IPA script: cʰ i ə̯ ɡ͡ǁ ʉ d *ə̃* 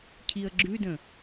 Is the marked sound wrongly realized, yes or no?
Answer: no